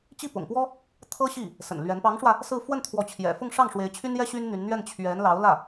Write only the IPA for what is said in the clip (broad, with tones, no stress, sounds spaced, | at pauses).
t͡ɕ i˥˩ p ʊ̰˨˩ ŋ p w ɔ˥ | t̪ʰ ɤ˥ ɕ i˥˩ | s ə̰˨˩ n l ɥ ɛ˧˥ n p ɑ˧˥ ŋ ʂ w ä˧ | s ɹ̩˥˧ f w ə˥˩ n t̪ʰ w ɔ˧˥ t͡ɕʰ j ɛ̰˨˩ f ʊ˥˧ ŋ ʂ ɑ˥˩ ŋ ʂ w e˧˥ ɪ̯ t͡ɕʰ y˥ n j ɛ˥ ɕ y˥ n n̪ y˧˥ n n̪ ɥ ɛ˥˩ n t͡ɕʰ ɥ ɛ˧˥ n l ɑ˧˥ ʊ̯ l ä˥˩